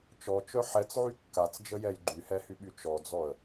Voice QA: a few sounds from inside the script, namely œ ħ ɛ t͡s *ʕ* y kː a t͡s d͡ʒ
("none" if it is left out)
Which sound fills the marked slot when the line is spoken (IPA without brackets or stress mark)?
ʕ